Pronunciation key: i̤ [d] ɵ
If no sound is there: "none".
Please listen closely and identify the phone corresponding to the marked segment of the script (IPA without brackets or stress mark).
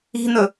n̪